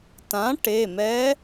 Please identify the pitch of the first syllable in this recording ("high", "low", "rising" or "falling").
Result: rising